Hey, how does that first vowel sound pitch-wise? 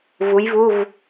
rising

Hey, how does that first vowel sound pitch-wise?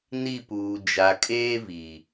falling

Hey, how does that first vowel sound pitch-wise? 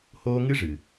high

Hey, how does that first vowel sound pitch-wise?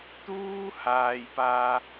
high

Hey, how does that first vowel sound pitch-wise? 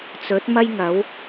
rising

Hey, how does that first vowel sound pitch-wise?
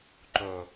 low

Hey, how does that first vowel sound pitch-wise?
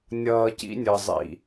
low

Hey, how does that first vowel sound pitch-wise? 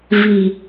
low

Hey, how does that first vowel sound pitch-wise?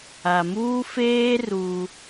low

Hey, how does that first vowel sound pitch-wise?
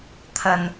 low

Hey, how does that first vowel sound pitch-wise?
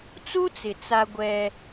high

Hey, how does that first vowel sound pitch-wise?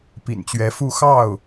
low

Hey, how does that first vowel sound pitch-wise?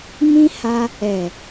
high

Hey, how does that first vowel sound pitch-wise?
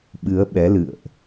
rising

